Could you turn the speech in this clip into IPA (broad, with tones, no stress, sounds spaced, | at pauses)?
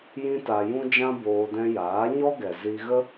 j ĩ˦ t a˧ j ũ˦ d͡ʒ ã˦ b oː˧ d ɛ̃˧ j aː˨˦ ɲ ɔ˦ ɡ ɛ˨ z i˧ ɣ ə˦